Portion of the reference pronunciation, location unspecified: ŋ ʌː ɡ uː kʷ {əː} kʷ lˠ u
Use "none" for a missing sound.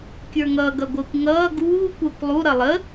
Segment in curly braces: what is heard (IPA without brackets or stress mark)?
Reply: əː